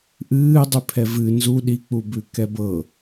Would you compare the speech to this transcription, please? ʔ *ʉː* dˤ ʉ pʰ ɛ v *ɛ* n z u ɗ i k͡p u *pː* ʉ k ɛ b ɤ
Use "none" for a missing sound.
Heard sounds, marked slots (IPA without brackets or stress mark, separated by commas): ɨː, ɨ, b